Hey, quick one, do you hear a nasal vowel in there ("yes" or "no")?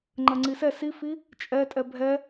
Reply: no